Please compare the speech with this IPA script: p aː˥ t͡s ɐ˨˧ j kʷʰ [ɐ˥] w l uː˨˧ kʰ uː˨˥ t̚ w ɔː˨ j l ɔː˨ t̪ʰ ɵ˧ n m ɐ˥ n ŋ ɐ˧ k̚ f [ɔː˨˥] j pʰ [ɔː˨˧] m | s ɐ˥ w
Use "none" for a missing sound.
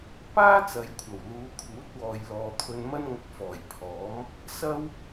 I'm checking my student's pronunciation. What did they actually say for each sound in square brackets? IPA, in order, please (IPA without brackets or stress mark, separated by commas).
ɐ˨˩, ɔː˨˩, ɔː˨˥